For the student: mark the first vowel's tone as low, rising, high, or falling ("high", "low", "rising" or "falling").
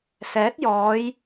rising